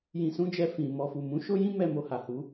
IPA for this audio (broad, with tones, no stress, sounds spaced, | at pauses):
j ĩ˧ s ũ˦ d͡ʒ ɛ˧ f ĩ˨ m ɔ˧ f u˨ m ũ˨˦ ʃ o˦ j ĩ˦ m ɛ˧ m o˨ h a˨ h u˨˦